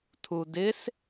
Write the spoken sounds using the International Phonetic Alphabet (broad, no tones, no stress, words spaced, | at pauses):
tʰudɪs